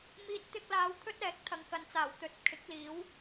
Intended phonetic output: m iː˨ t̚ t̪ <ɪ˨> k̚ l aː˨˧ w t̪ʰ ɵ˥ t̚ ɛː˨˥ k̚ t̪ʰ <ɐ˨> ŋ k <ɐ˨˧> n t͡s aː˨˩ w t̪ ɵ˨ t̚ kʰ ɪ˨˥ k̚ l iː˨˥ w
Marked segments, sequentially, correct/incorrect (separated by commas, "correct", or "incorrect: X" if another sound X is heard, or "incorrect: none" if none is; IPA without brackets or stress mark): incorrect: ɪ˧, correct, incorrect: ɐ˨